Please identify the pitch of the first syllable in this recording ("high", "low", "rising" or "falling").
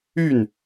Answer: falling